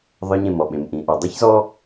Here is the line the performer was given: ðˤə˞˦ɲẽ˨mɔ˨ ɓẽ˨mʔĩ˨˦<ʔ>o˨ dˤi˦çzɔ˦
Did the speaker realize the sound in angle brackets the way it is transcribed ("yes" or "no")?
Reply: yes